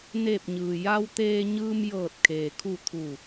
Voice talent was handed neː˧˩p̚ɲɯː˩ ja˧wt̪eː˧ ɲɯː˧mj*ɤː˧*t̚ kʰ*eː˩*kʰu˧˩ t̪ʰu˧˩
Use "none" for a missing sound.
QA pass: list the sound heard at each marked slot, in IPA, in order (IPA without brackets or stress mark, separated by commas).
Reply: ɤː˧˩, eː˩